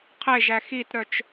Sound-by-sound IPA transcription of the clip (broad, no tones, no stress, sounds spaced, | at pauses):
qʰ e ʒ æ x i t ɾ œ t͡ʃ